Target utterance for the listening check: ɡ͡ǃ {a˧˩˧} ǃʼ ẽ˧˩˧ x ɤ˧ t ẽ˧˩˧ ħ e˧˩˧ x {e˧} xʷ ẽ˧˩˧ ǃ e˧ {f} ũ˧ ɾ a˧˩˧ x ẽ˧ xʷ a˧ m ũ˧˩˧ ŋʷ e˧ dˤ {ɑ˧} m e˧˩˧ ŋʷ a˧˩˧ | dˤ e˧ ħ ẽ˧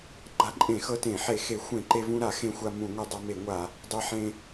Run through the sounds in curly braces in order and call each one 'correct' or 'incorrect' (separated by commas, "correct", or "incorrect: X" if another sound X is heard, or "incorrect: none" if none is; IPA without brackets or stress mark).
incorrect: a˧, incorrect: e˧˩˧, incorrect: v, incorrect: a˧